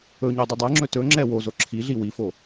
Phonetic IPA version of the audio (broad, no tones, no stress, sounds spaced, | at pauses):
ɵ ɲ o dˤ u dˤ ɛ ŋ͡ǁ ɵ t ɵ ŋ͡ǁ ɛ w o z o ǁʰ i ɮ i w i f o